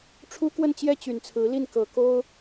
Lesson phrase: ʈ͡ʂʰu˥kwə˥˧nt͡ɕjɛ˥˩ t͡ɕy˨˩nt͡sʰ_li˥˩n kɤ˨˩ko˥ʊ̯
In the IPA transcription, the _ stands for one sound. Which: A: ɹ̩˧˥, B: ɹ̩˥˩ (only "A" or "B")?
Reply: A